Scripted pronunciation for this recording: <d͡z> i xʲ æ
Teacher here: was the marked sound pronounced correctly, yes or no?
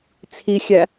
no